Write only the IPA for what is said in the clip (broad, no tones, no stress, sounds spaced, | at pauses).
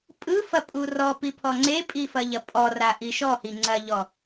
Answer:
pʼ ɯ f ɐ pʼ u r ɔ p i pʰ ɔ ŋ͡ǀ e pʼ i f ɐ ʎ ɐ pʼ ɔ r a ʔ i ʃ ɔ h i ŋ͡ǀ ɐ ʎ ɔ